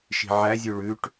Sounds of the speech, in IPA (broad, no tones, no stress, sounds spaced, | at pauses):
ʃ i̤ ʕ æ zʲ ʉ ɭ ʉ ʈ